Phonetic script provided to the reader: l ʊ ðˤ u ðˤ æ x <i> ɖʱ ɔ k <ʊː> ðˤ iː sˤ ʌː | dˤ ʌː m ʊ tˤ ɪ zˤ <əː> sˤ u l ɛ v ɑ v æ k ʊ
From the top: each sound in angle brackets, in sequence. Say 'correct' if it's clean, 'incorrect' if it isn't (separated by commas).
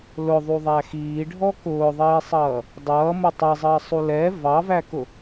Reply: incorrect, correct, correct